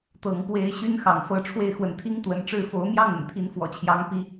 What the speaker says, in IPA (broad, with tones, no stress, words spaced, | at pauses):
t̪ɤ˨˦ŋpwe˦ɪ̯ ɕy˦nxɑ̰˨˩ŋfɤ˨˦ ʈ͡ʂʰwe˦ɪ̯xwə˨˦n t̪ʰi˦ŋt̪wə̰˨˩nʈ͡ʂɻ̩˥˨ fo˨˦ʊ̯mjɑ˥˨ŋʊ̰˨˩ŋ t̪ʰi˨˦nfwɔ̰˨˩t͡ɕʰjɑ˨˦ŋ pi˨˦